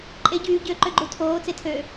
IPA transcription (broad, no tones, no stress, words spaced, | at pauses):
ǃʼe ɟyː ɟø ǃøɡ͡ǃutʰoː t͡setʰø